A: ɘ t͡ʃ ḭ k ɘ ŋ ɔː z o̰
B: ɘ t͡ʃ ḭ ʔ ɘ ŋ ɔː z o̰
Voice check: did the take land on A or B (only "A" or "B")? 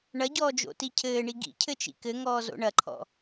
A